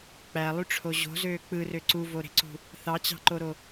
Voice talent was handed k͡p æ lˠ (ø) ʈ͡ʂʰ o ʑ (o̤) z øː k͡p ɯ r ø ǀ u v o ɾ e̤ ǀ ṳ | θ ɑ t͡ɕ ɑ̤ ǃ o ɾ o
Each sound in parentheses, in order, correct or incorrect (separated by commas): incorrect, correct